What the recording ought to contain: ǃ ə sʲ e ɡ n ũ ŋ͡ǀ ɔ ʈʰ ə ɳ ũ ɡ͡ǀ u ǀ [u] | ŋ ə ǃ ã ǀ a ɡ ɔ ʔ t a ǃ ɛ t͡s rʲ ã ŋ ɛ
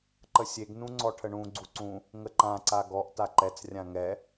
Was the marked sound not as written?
yes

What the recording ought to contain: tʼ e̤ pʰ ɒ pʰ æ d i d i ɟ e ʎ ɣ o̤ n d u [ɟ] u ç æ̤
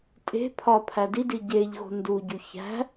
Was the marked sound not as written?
no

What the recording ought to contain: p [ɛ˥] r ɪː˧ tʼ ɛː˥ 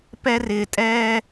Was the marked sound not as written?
no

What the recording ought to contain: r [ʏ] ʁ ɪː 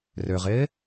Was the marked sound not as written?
no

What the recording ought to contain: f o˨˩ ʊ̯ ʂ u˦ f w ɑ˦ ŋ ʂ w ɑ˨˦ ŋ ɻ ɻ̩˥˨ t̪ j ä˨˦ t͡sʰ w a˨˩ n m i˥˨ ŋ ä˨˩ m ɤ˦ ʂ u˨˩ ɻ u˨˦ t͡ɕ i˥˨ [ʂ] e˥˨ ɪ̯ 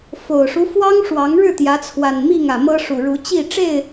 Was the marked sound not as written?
yes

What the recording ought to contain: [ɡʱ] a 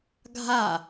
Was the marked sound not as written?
no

